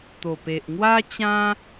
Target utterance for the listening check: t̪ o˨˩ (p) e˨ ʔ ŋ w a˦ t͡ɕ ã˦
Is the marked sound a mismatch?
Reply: no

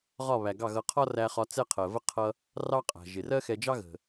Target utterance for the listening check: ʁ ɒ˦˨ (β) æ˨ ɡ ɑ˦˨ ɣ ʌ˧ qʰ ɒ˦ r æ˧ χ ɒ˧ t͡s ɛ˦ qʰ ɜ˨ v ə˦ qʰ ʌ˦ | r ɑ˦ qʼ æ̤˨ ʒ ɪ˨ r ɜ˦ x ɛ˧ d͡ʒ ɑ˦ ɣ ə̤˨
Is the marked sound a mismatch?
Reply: no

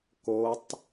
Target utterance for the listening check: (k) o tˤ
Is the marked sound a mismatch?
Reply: no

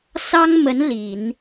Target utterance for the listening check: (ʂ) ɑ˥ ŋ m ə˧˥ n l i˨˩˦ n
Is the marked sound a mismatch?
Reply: yes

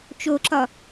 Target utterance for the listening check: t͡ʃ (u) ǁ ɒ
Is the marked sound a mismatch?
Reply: yes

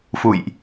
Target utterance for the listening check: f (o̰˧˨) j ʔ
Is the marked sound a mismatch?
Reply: yes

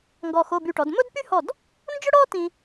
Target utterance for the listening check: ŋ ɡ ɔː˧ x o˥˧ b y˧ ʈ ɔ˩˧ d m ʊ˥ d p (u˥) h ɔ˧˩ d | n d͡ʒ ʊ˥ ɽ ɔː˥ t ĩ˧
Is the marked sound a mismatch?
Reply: yes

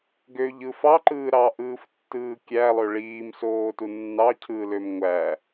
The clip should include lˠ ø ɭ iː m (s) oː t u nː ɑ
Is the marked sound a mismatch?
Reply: no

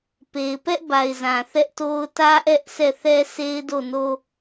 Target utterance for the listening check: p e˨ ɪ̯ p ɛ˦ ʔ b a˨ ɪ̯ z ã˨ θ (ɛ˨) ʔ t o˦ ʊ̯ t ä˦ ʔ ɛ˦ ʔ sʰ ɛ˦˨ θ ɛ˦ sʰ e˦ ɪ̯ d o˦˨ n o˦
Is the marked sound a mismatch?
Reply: yes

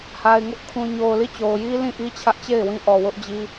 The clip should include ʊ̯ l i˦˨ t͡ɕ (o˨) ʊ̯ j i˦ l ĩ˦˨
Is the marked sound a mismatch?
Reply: no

